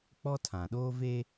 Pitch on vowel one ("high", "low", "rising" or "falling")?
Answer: high